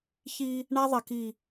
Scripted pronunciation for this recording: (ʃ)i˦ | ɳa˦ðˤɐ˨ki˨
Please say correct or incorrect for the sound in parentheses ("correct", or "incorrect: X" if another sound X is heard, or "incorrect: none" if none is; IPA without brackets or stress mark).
incorrect: ç